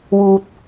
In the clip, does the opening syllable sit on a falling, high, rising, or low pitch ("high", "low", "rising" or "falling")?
low